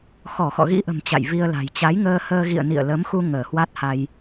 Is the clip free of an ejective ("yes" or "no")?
yes